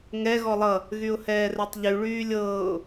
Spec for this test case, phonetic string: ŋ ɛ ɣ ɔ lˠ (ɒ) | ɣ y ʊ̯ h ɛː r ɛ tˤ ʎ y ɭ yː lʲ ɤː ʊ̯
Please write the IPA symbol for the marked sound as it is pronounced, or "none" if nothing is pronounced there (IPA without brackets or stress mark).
ʌ